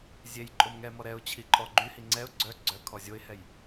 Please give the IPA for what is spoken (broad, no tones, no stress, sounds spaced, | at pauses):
zʲ e j ǃʼ o m ŋ ɛ m ɔ ɾ ɛ ʊ̯ t͡ɕʰ i ǃʼ ɔ ɡ͡ǃ y h i ŋ͡ǀ ɛ ʊ̯ ɡ͡ǀ œ ɡ͡ǀ œ kʰ ɔ zʲ o ɪ̯ h ɛ j